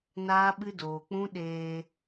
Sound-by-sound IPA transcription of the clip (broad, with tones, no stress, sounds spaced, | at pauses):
n aː˦ ɓ ɨ˦ d oː˧ k͡p ũ˦ ɗ eː˧